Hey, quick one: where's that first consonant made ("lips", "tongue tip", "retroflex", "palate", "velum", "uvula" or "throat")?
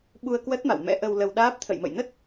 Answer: lips